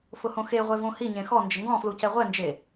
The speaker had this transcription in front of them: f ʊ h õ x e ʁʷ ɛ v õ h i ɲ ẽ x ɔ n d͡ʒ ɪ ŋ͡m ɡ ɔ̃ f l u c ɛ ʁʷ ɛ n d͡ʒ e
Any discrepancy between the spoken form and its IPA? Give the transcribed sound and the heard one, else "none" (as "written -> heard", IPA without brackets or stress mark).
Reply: ŋ͡m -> ŋ